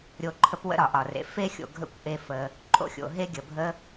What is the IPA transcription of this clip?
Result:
ɾʲo˦ǃʰə˥pwə̰˥ ɾɒ˩ʔɒ˩rḛ˩ fe˥xʲo̰˨ɡʱə̰˦kʷ ʔe˦fə˨ | ǃʼo̰˥xʲo̰˩ ɦe˥ ɡʲə˩bʱə˥

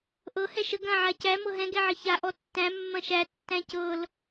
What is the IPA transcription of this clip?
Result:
ʔɤ hɛʃə ɡɐ̃ ʕacæ mɤɦɛ̃ ɡɛʕəça ʔɔtːæ̃ mːɐ̃ʃæ tːæ̃cɤl

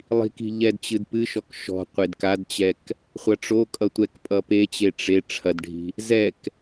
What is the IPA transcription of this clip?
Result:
lˠi̤ki̤ ʎɛdt͡ɕɨdpɨʃɔk ʃɔ̤qʷed kadt͡ɕɛk | χʷɐʈ͡ʂokʼʌ tʷɛk pʼʌpet͡ɕe ʈ͡ʂe ʈ͡ʂʰɐdɖʱi̤ | zɛk

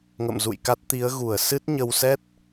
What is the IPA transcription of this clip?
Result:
ŋə̰˧˨mzṵ˧˨jka˦˥t̚ t̪i˨˦ə̯ɣu˧˩ə̯ sɨ˦˥t̚ɲə˧wsɛ˦˥t̚

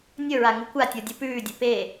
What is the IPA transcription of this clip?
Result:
nʲɵɹa ŋukʷatʲo dʲupʉːdʲɵ pe

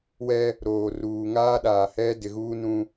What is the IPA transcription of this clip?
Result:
wɛ˦ | ɾoː˨ruː˨ ŋaː˦ɗaː˨ hɛ˦ dɪ˨ɣuː˦ nũ˦

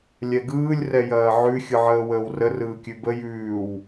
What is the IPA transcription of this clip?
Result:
lʲɛɡɯːlʲ rɛjɐːʕʉ xʲɯʕəːwəːwrə rɯːkʲʉbə jʉːw

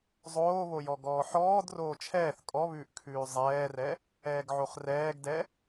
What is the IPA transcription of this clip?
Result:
zˤoːβojɔɡɔː ħɔːd roːt͡ʃʰɛːθ kʼɔβʉːʔ kʰʉːzˤɛːrɛ | ɛːɡʕoχrɛːɡdɛ

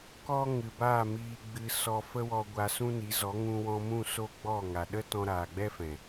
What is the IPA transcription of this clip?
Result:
kɔ˦ŋɨ˨baː˦˨ miː˨ɡ͡bɨ˨ sɔ˧fə˦wɔ˧ ɡʷa˧sũ˦ni˨˦zɔ˨˦ ŋũ˧wɔ̃˧mũ˦˨ so˦ɡ͡bɔ˦˨ŋa˨ ɗə˦ tɔ̃˧ɾaː˨ɡ͡bɛ˦fɛ̃˨

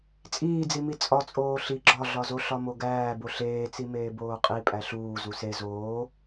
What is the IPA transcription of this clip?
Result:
t͡sʼiːd͡zimi t͡sʼɒt͡sʼoː ɬi ɡ͡ǁɒɮɒzo ɬɒmoɡæː boɬeːt͡simeː boːqʼi pʼæɬuː zuse zoː

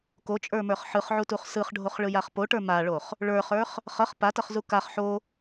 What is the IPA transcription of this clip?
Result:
kot͡ʃʼə˞mə˞χ ħɯχʕutuχ sɯχɖʱoχɭɯjaχ poʈə˞ maɭoχ | ɭə˞χə˞χ | χʌχ patʌχzu kaχ ħo

